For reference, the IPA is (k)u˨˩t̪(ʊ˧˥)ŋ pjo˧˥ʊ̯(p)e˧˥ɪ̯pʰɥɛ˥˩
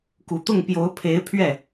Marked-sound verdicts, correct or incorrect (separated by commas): correct, incorrect, incorrect